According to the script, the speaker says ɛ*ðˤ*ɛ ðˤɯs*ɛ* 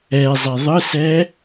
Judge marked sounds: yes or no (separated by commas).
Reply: no, yes